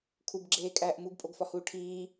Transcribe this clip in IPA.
kʰubɡ͡ǁeːkʼæːʔ muɡpʼoɡfɒhuː ʈʰiː

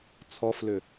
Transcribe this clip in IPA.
t͡sʰɔflʏ

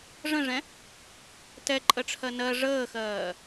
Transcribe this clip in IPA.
ʐə̃ʐɛ̃ | tɛǃʼəʈ͡ʂʰɜ nɜ ʐəːxɜː

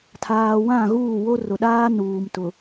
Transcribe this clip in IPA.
tʰaː˨wã˦˨ɣuː˦˨wo˦ rʊ˨ɗaː˦ nuː˨mtʊ˨

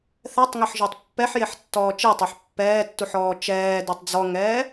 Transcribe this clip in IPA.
θɛtˤŋɛħʒøtˤ pːɛħjeħtːɔː t͡ʃetˤøħ pːɛːtːuħɔː t͡ʃɛːdøtˤ d͡zɔŋɛː

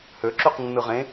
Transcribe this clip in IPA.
høǁyqnːɯʁẽ

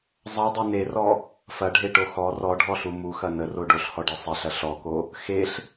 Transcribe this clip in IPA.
zˤɐdˤu nerɔ | fɐɖʱeʈo xɔ rɔɖʱɔɬu muxɐ nəro ɖoɬhɔɖe sˤeɬɐ ɬɔko | xeɬ

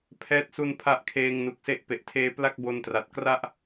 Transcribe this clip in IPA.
pʰɛː˦˥t̚su˧n pʰa˦˥ʔkʰeː˧ŋ nu˨˩k̚se˦˥ʔpe˨˩ʔtʰeː˦˥ pla˥˩k̚bo˧ntra˨˩t̚ kra˥˩ʔ

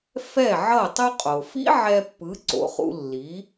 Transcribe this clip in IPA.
fɛ˥˩ʕʌ˥˩ tˤu˧qʼo˩fḭ˥ ʕɛ˧pːɯ˩˥ ǀo̰˩˥χṵ˧lːi˩˥

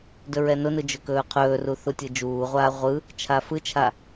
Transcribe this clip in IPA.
dɵɹɛnʊnɯ d͡ʒɵkɵːqʰɵːru θutʲɯd͡ʒuːʁʷaː ʁʷɯ | t͡ʃʰafɯt͡ʃʰa

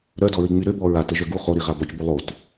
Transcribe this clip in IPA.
ɾœdɔɹi ŋ͡myɾøbɔ ɹatə ʒœɡu χoɾiʁa bɔcbo lˠot

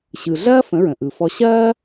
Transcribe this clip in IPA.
ɕɯ˩ɮɐː˥ fə̃˩˥ɹə̃˩ʔɯ˩fɔ˧ ɕɐː˥

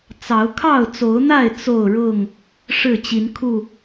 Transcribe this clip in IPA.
t͡sɑ˨˦ʊ̯ kʰɑ˥˨ʊ̯t͡so˨˦ʊ̯n̪a˥˨ɪ̯ t͡so˥˨ʊ̯ɻʊ˥˨ŋ | ʂɻ̩˥˨t͡ɕi˨˦nkʰu˥˨

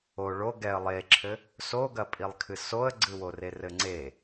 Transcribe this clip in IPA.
o ɭo ɡɛə̯ lˠeǁʰɘ | soɡɐpʼilˠkʰɨ soə̯ɡ͡ǀɨwore rɘŋ͡ǀe

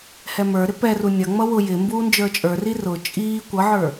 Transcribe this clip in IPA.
hɛmə˞ɾɪ pɛru nʲʌŋ͡mʌ wʊ jɪ mbuːnd͡ʒə˞t͡ʃʼə˞ri rʊ t͡ʃʼiː kʷʌʕə˞

